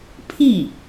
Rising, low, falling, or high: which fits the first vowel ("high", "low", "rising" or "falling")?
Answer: falling